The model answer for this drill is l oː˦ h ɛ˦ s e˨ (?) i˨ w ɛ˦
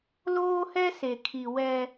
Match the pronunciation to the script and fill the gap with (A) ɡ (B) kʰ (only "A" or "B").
B